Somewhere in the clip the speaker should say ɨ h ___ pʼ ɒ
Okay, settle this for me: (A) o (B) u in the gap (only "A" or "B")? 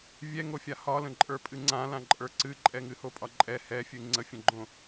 A